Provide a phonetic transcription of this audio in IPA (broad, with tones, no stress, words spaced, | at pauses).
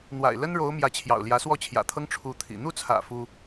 n̪wa̰˨˩ɪ̯ lə˥nɻo˧˥ʊ̯ mjä˧˥t͡ɕʰjɑ̰˨˩ʊ̯ ljä˧˥swɔ˥˩t͡ɕʰjä̰˨˩t̪ʰɤ˥ŋ ʈ͡ʂʰu˧˥t̪ʰḭ˨˩ n̪u˥˩t͡sʰä̰˨˩ fu˥